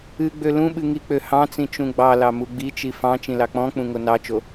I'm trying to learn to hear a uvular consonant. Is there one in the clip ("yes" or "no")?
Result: no